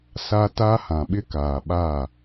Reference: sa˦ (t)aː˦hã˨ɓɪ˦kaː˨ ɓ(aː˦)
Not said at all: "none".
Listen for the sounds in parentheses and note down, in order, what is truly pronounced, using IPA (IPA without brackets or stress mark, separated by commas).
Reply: t, aː˦˨